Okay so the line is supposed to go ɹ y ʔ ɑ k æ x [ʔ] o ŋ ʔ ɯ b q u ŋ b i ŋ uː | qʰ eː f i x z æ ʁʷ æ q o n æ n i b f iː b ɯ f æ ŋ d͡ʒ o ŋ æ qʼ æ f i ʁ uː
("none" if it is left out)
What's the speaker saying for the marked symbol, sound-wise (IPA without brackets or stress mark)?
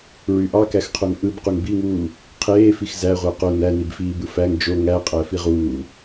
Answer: qʰ